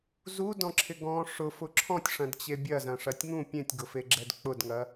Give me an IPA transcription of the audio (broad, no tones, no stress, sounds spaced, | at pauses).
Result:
z u d ɔ̃ ǁʰ ɪ ɡ ɔ̃ ʂ ʊ f ʊ ǁʰ ɔ̃ tʲ ʂ ɐ̃ d t͡ɕ e bʲ ɐ z ɐ̃ ʂ ɐ tʲ ŋ ũ pʲ ẽ tʲ ɡ ʊ f e ɡ͡ǁ ɛ d k͡p ʊ d ŋ ɐ